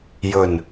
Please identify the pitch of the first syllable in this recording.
low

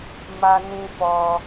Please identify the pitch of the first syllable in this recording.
high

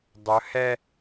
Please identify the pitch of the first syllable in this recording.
rising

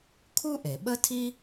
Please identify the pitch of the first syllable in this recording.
high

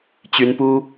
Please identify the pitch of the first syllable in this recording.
rising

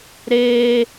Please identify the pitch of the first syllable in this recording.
high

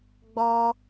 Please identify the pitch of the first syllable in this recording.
high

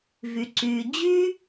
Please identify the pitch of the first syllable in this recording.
low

